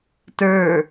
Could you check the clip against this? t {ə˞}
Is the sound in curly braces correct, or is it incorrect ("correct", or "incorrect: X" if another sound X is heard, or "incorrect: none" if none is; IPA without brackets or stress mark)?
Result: correct